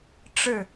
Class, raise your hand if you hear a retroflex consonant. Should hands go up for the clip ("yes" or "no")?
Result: yes